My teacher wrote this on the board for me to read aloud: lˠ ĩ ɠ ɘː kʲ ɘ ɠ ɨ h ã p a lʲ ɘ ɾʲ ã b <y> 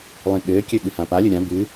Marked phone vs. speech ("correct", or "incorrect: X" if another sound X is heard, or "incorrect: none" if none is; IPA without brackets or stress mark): incorrect: ɨ